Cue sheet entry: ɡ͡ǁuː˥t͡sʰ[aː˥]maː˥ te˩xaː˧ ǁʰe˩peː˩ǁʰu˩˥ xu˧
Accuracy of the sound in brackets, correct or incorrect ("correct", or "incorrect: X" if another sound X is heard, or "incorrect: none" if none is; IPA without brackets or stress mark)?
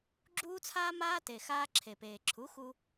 correct